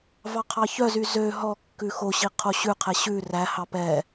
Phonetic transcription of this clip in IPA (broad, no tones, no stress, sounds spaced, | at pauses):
v ɑ qʰ ɑ ç œ z y z ø ɦ ɔ kː ʉ x o ɕ i qʰ o ɕ ʉ qʰ ɛ ɕ ʉ r æ h ɑ p ɛ